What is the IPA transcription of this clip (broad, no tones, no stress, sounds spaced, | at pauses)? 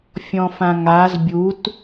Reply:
fʲ ɔ̃ f ã ŋ a z bʲ u t